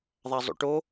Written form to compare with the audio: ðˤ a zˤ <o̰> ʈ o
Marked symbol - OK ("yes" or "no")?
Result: yes